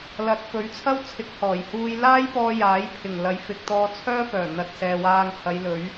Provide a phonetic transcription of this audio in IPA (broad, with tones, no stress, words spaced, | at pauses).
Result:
lɐ˨˥t̚fɵ˨˥ɥt͡sʰɐ˥wt͡sʰɪ˨˥k̚ hɔː˨˩jhuː˥j laː˥jpɔː˧ jaː˨˥jpʰɪ˨˩ŋlɐ˨˥j fɪ˨k̚t̪ɔː˧t͡sʰœː˥ fœː˨˩n̪ɐ˨t̚ sɛː˨waː˧ŋhɐ˨˧jlɵ˨˥ɥ